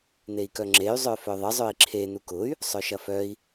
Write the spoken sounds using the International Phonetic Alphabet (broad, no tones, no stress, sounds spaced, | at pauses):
n̪ e i̯ k œ ŋ͡ǁ e y̯ zˤ œ f œ ðˤ ə zˤ œ i̯ ǁʰ e n u k ʊ y̯ | sˤ œ ʃ ɐ f œ i̯